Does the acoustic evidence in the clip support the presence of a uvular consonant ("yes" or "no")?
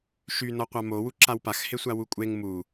yes